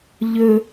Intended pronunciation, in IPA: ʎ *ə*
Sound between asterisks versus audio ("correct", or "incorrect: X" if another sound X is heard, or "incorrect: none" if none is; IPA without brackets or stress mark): incorrect: ɵ